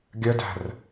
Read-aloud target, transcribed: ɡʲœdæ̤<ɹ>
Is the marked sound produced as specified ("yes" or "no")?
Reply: no